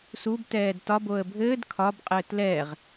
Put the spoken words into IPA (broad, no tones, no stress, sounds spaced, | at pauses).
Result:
s u b t ɛː d t ɒ b o ə̯ bʱ ɘː d kʰ ɒ b qʼ ɘː t l ɛ ʁ